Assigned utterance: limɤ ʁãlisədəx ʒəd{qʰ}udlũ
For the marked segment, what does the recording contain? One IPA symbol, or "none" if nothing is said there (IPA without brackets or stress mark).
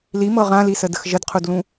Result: qʰ